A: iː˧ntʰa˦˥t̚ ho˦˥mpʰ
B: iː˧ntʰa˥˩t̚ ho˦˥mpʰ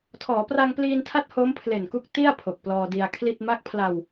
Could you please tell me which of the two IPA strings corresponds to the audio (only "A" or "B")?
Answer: A